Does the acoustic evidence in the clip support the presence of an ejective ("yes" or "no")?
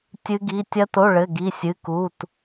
no